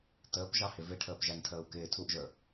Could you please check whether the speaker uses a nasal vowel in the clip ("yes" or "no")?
no